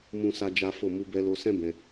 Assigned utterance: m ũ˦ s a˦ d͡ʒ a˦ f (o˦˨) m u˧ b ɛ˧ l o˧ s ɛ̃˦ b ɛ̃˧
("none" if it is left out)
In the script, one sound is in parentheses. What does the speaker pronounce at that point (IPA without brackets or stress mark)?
o˦˨